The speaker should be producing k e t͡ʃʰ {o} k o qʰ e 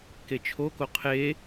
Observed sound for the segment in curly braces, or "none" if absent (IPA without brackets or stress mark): o